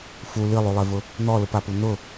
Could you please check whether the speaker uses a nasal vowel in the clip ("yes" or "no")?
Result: no